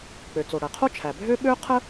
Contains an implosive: yes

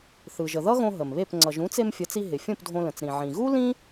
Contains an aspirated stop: no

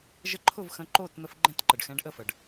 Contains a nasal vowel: yes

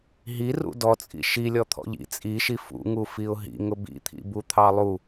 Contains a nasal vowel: no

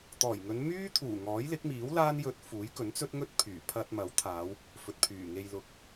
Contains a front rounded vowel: yes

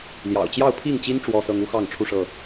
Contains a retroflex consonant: yes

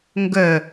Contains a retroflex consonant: no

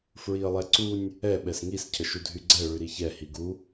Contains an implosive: yes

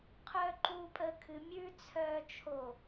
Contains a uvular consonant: yes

